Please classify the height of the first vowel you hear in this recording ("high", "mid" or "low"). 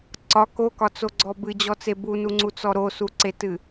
low